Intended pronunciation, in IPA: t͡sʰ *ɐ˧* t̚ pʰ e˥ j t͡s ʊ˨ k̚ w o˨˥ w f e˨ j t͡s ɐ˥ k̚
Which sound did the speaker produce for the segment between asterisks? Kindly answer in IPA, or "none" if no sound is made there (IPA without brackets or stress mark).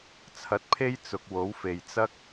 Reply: ɐ˨˥